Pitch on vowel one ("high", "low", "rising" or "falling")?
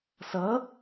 rising